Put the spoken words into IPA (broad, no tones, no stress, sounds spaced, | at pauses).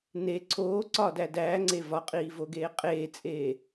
n e ǀʰ oː ǀ ɒ d æ d æː ŋ͡ǀ e v ɒ qʼ iː v o ɡ eː qʼ eː t͡sʼ eː